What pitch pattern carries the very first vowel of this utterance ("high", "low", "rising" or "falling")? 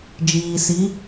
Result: low